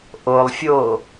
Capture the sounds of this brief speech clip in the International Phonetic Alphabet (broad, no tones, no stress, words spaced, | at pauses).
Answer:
ʔolˠfʲoː